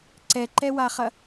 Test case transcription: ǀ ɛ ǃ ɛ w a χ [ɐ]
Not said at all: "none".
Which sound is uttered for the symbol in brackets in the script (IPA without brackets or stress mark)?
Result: ɐ